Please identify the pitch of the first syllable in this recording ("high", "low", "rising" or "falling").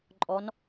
rising